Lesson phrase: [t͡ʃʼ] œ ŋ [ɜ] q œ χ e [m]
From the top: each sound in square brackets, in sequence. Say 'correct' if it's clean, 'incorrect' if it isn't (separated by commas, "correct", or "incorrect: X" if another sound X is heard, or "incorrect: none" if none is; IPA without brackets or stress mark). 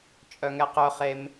correct, incorrect: ɛ, correct